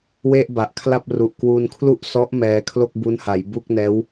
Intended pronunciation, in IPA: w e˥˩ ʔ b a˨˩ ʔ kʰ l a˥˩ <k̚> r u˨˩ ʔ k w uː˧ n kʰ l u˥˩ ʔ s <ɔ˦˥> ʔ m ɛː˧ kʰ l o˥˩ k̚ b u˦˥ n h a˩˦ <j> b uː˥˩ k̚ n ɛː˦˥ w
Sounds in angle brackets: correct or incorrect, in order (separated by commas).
incorrect, correct, correct